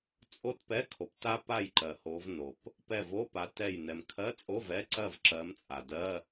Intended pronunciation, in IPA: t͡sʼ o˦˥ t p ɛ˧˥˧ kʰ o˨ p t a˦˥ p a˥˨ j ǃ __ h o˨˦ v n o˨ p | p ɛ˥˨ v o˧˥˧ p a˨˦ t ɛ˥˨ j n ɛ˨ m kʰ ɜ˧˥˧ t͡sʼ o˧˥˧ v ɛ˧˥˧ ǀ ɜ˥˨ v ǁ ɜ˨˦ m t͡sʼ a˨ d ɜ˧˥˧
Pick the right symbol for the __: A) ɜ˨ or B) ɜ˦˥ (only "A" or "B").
A